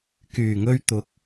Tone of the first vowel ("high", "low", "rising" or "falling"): low